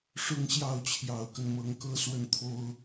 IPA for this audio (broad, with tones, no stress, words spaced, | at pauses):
ʂʊ˥˧ŋɕjɑ˥˩ʊ̯t͡ɕʰjɑ˨˩ʊ̯kə˦n mɤ˧˥ŋkɤ˥swə˥˩nt̪ʰo˥ʊ̯